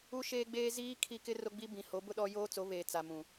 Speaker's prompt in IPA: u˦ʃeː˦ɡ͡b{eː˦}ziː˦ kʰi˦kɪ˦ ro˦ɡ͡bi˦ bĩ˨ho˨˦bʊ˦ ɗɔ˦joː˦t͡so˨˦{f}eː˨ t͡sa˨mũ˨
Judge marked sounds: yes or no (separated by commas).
yes, no